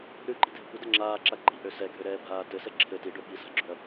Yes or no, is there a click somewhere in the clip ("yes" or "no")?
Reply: yes